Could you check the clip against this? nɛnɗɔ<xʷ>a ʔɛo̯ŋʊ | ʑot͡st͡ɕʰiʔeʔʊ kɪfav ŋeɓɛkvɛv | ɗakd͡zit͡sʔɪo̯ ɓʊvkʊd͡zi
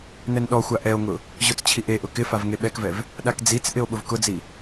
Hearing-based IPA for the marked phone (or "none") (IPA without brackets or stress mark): xʷ